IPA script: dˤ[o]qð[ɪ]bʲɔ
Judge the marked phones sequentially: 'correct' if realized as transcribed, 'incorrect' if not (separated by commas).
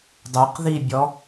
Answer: correct, incorrect